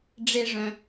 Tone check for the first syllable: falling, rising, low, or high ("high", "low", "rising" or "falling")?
low